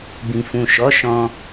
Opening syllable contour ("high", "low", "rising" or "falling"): low